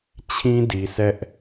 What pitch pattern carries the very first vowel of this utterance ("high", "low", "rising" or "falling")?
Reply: high